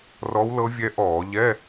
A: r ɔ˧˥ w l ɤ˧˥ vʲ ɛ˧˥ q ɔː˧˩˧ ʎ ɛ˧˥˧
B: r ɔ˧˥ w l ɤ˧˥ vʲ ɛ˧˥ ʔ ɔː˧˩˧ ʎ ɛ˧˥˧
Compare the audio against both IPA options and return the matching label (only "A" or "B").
B